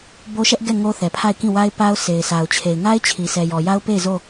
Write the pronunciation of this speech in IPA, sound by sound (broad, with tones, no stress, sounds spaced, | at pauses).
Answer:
b o˦ ʃ ɛ˦ ʔ ɡ ɛ˦˨ ŋ o˦ θ ɛ˨ pʰ a˦˨ ɪ̯ k ĩ˦˨ w a˦ ɪ̯ p a˦ ʊ̯ s e˨ ɪ̯ sʰ a˨ ʊ̯ t͡ɕʰ e˨ ɪ̯ ŋ a˦ ɪ̯ t͡ɕʰ i˨ sʰ ɛ˨ j ɔ˨ j a˦ ʊ̯ p e˦˨ ɪ̯ z o˦˨